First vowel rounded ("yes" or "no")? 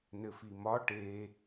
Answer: no